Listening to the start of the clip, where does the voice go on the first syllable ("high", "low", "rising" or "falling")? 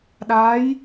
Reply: rising